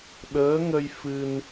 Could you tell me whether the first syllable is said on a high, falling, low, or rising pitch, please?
rising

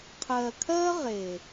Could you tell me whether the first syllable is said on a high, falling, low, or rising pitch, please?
low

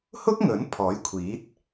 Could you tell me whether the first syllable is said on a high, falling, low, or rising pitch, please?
high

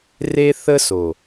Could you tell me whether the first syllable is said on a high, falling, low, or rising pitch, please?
high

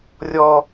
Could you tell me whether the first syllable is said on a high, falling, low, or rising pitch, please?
high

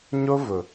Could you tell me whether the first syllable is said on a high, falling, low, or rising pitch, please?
high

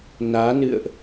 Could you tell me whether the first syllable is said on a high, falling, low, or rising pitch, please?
rising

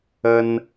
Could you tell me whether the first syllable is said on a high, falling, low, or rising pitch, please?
high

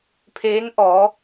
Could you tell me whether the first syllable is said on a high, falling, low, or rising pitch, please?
rising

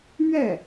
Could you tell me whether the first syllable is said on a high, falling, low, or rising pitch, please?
falling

